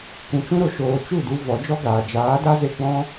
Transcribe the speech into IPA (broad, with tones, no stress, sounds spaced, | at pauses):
kʷ ũ˨ t͡ʃ ũ˦ ɾ o˨ ʃ oː˨ t͡ʃ u˦˨ d u˧ v ɔ˨˦ d͡ʒ ɔ˦ ɡ aː˨ d͡ʒ aː˨˦ d a˦ z e˧ ɡ͡b ɔ̃˦